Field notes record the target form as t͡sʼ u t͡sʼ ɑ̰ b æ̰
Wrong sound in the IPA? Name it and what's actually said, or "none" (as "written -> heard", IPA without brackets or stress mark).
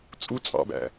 none